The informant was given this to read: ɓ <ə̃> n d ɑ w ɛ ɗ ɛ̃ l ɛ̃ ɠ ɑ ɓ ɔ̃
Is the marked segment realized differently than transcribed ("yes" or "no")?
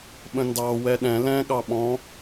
no